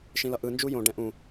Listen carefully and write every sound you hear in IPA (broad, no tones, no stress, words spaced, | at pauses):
ʃĩlʌʔɯ nd͡ʒujõ ɖɛ̃ʔũ